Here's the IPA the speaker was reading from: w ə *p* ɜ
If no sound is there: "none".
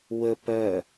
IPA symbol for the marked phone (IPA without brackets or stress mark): p